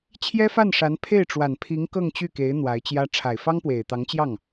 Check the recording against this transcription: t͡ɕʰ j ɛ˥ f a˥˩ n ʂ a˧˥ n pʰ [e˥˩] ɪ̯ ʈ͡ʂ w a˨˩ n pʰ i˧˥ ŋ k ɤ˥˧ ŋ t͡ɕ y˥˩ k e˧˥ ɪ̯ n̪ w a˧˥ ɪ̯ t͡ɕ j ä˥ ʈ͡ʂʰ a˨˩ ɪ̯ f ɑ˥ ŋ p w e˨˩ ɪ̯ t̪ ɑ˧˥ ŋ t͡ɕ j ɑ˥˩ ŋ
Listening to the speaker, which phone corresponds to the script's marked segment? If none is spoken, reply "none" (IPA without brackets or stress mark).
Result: e˥˩